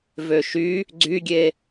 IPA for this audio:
v ø ʃ y | ɡ͡ǀ y ɡʲ e

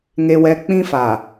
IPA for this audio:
ŋ e˦ w ɛ˦ k͡p ĩ˦ f a˨

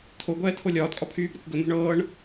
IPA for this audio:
t̪ʰ o ɡʷ ɛː t̪ʰ o lʲ ɒː t kʼ ɒ pʰ yː b ɾ ɛ kʷ ɡ ə n̪ o̤ ɳ ɤː ɳ

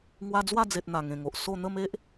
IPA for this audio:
ŋ w a˦ d͡z w a˥˧ d͡z e˨ t̚ n̪ a˨˩ ŋ ẽ˨˩ ŋ o˨ ʔ s o˥˧ n̪ ə˥˧ m e˦ ʔ

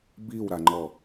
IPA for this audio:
b i w ɾ a ŋ͡ǃ ɔ

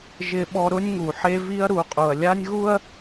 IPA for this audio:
ʒ ɪ˦ ɓ ɔ˦ ɾ ʊ˦ nʲ ŋ u˨ ħ e˦ v i˦ ɐ̯ ɾ u˨˦ qʼ u˨ ɐ̯ lʲ a˦ nʲ ɣ u˦ ɐ̯

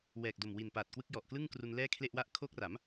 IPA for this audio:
w ɛː˨˩ k̚ d o˨˩ m w i˨˩ n p aː˨˩ t̚ k w ɯ˦˥ k̚ j ɔ˨˩ ʔ k l ɯ˥˩ ŋ k r u˧ n l ɛː˥˩ kʰ l e˥˩ ʔ w a˥˩ ʔ kʰ oː˦˥ k̚ r a˩˦ m

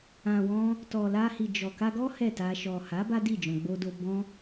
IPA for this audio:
ã˨ w ɔ̃˧ | t ɔ˨ l a˧ h i˨ d͡ʒ ɔ˨ k a˧ ɡ ɔ˦ h ɛ˦˨ t a˧ ʃ ɔ˨ h a˨˦ b a˦ d i˦˨ d͡ʒ ɔ̃˨ ɡ͡b o˧ d o˧ b ɔ̃˦

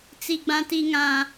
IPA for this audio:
t͡s i˦ ɡ͡b ã˦ t i˦ ŋ ã˦

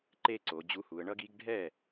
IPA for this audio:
ǃ e˦ ǀ o˩˧ d͡ʑ u˨˥ h u˩˧ ə̯ ɳ ʌ˦ ɡ i˨˥ ɡ ɖʱ ɛ˥˩

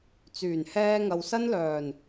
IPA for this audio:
t͡s yː˨˩ n h ɛː˧ ŋ ɐ˨ w s ɐ˥ n l œː˨˩ n

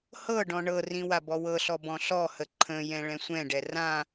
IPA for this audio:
h ɤ ɖ ɔ̃ ɳ ɤ r ĩ w a b ɔ w ɤ ɬ ɔ b ɔ̃ ɬ ɔ h ə ǃʰ ə̃ j ɛ̃ ɭ ɛ̃ sʷ ɛ̃ ɖ ɛ r ã

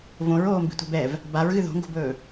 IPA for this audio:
v õ ɹ oː m b i̤ tʷ ɛ̤ b ɛ v | b a ɹ ɣ ɨ ð o̤ ŋ ɡ o̤ b ɵː

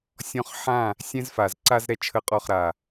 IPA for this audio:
sʲ ɔ̃˦ χ ħ ã˥˨ | sʲ ɛ̃˦ z f a˨˩ z ǀ a˦ z ɾ ɛ˦ t͡ʃʰ ə˥˨ qʼ ɔ˥˨ χ ɾ a˨˩

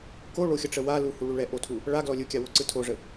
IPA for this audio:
k o ɭ o xʲ ə ʈ͡ʂ ə w a l u h u ɭ u ɭ ɛ ʔ o tʰ u | ɭ a ɡ l ɔ lʲ ɯ kʲ a w o ǀ ɯ tʰ o ʐ ə

